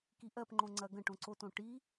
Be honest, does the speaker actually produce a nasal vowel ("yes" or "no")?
yes